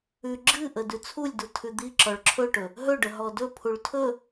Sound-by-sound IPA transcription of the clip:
ʉ ɡ͡ǁɨʔə dʉt͡sʰulʲdu tʰʉd̪i ǁɔɭǁʰɵʈɵ | ɦɵɖə ɦɔdɵ pʰuɭtʰɵ

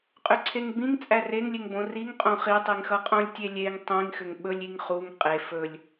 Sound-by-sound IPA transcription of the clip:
qʼʏǀʰeŋbĩŋ t͡sʼæreŋlʲeŋbõ riŋ qʼõχitˤiŋ xʌqʼõlʲtʲelʲeŋ tˤĩŋxʏŋ ɓɵlʲiŋ χuŋ qʼe fɵlʲ

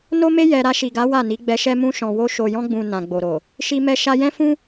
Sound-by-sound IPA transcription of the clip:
no˦me˦ jɛ˧ ɾa˧ʃi˨ɡa˨˦ wa˦˨ni˨˦ɡ͡bɛ˧ʃɛ˦ mũ˧ʃɔ̃˨wo˧ ʃo˨jɔ̃˧ɡ͡bũ˨ nã˨ɡ͡bo˨ɾo˨ | ʃi˧mɛ˧ ʃa˧jɛ̃˦fũ˦

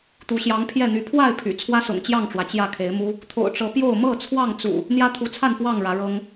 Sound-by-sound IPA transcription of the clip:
t̪u˨˦ɕjɑ˨˦ŋpʰjɛ˥˨n̪y˨˦ pʰwa˥˨ɪ̯ pʰy̰˨˩ t͡sʰwä˦sʊ̰˨˩ŋt͡ɕjɑ˥˨ŋʈ͡ʂwä˩ t͡ɕjä˥˨ kʰe˨˦ɪ̯mu˦ | t̪ʰo̰˨˩ʊ̯ʈ͡ʂɤ˨˦pjo˥˨ʊ̯ mɤ˥˨t͡sʰwɑ˥˨ŋt͡sṵ˨˩ | n̪jä˦t̪ʰu˨˦t͡sʰa˥˨n pwɑ˥˨ŋ ɻä˨˦ɻɤ˦ŋ

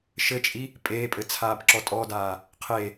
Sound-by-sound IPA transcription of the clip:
ʃɘt͡ʃʼi | pʼeːpʼɘ t͡sʰaːbǁɔtʼɔdaː | qʰe

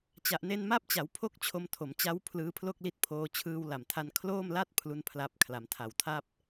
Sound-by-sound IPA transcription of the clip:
t͡ɕa˨˩ʔne˧nma˦˥p̚t͡ɕa˩˦w pʰo˥˩k̚t͡ɕʰo˧m tʰo˩˦mt͡ɕa˦˥w pʰlɯː˦˥pʰlo˥˩k̚li˦˥t̚pʰoː˧ t͡ɕʰɯː˧wla˨˩mtʰa˧n kʰloː˥˩mla˥˩t̚ pʰlu˥˩npʰla˥˩p̚ kʰla˩˦mtʰa˨˩wtʰa˥˩p̚

